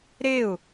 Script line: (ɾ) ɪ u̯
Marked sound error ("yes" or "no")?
no